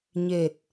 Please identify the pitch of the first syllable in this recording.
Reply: low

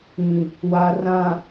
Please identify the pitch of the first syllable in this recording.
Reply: low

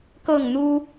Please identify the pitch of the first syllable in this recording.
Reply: falling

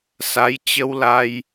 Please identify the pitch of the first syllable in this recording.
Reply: rising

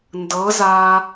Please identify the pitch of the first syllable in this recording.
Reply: rising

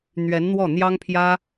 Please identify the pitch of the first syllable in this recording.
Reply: rising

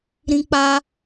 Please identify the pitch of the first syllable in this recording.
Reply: high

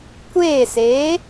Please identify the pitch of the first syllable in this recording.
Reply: falling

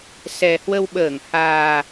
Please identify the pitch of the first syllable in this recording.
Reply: low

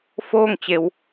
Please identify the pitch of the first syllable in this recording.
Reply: falling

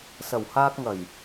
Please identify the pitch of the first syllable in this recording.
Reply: low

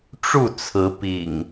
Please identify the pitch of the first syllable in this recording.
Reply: falling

